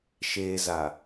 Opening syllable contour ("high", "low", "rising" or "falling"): low